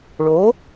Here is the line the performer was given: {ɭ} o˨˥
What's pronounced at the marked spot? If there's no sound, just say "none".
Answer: ɭ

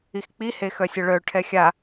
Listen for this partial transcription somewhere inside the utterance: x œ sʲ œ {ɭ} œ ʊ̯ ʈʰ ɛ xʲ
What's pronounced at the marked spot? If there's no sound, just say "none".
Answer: ɭ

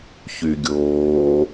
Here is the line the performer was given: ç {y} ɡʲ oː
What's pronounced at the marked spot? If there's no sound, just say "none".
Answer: y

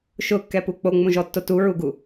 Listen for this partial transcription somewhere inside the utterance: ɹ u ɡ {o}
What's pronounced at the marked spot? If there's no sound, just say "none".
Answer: u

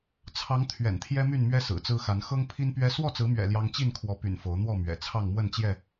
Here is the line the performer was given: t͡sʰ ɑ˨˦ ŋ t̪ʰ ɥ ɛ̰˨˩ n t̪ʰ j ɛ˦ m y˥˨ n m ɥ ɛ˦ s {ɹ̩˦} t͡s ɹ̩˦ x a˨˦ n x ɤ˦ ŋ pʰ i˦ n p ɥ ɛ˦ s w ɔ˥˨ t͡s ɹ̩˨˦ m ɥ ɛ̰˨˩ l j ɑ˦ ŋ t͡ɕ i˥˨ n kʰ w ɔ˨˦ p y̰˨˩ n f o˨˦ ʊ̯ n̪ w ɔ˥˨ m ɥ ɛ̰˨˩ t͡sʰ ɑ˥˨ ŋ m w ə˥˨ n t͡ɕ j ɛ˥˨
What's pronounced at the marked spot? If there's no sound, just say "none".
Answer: ɹ̩˨˩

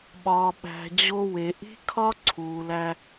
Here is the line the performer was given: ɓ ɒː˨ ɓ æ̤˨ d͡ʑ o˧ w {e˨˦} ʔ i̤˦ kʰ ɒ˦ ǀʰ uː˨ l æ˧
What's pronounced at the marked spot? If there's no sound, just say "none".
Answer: e˨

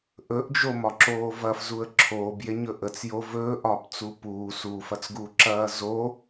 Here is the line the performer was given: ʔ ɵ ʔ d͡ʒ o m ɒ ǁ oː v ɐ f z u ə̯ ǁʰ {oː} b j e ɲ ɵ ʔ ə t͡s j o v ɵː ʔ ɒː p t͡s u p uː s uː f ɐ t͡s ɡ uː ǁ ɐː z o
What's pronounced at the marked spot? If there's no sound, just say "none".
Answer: oː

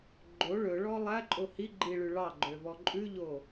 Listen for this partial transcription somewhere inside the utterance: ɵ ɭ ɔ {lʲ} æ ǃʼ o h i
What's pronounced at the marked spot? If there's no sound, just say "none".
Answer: lˠ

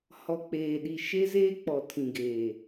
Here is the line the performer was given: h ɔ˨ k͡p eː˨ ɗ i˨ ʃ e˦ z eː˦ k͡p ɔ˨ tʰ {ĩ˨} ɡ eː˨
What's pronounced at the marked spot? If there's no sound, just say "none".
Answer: ĩ˨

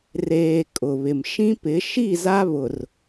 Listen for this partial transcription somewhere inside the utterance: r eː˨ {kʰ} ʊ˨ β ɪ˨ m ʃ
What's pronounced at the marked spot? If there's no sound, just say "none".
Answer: kʼ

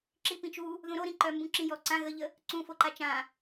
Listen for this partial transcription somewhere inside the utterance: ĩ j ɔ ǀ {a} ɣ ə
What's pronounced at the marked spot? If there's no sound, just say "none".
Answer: ã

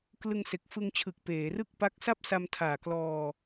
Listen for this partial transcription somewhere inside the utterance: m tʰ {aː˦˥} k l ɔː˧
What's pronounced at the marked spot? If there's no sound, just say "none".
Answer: aː˨˩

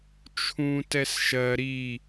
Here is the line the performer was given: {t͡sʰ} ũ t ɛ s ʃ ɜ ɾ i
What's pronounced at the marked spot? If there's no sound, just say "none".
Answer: t͡ʃʰ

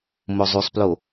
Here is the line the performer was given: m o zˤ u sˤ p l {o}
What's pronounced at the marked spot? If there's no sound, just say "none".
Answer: o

